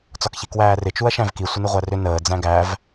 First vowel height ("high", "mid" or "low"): low